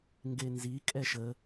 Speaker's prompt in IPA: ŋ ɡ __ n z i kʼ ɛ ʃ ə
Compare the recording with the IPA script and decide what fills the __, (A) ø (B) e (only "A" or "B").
B